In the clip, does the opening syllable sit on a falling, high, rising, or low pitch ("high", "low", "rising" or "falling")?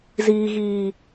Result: low